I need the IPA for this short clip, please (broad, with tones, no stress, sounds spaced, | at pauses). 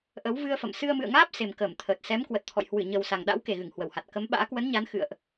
ʔ ə˨˦ w v ɨ˧ ə̯ f ə̰˧˨ m s ɨ˧ ə̯ m ɨ̰˧˨ ə̯ ŋ aː˦˥ p̚ s e˨˩ m k əː˧˩ m t̪ʰ əː˨˩ t̚ s ɛ˨˦ m k w ə˨˩ t̚ t̪ʰ ɔ̰˧˨ j h w ɨ˧˩ ɲ ə˨˩ w s a˨˩ ŋ ɗ a̰˧˥ w k e˨˩ ɣ ɨ˧˩ ŋ h w ə˧˩ w h a˨˩ t̚ k ə˨˦ m ɓ a̰ː˧˥ k w ə˨˦ n ɲ a˨˦ n x ɨ̰˧˨ ə̯ ʔ